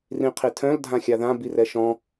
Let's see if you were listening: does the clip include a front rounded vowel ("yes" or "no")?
yes